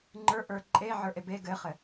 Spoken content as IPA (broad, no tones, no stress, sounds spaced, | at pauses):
ŋ͡ǃ ə˞ ʔ ə˞ ǃʼ e ʕ ə˞ ʔ e b e ɡ ɘ χ ɘ